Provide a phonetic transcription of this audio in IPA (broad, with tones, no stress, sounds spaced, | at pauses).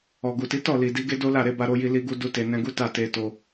ɔ˨ ɡ u˨ t i˨˦ t ɔ˦˨ l i˨ d i˨˦ ɡ e˦ d o˦ l a˦˨ ɾ e˧ b a˧ ɾ o˧ j i˧ l i˧ ɡ u˧ d u˦ t e˧ n ɛ̃˧ ɡ u˦ t a˦˨ t e˧ t o˧